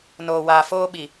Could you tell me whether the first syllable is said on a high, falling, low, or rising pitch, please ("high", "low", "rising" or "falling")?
low